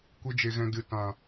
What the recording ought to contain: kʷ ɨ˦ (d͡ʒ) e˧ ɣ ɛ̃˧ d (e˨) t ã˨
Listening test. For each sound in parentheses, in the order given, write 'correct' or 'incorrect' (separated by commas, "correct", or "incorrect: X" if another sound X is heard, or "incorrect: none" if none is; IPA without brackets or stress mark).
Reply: correct, incorrect: ɨ˨